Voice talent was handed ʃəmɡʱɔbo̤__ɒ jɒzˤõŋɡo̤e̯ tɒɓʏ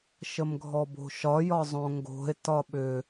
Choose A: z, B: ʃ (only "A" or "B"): B